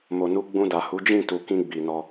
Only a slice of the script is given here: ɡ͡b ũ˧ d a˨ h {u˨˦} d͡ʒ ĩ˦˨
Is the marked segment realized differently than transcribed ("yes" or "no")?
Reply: no